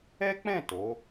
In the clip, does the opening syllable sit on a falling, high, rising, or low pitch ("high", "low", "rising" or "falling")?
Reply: high